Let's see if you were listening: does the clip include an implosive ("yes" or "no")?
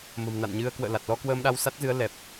yes